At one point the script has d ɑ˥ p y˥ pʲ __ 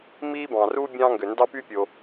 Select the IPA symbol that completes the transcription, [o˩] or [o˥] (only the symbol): o˩